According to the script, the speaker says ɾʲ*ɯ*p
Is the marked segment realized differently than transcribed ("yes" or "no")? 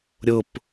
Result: yes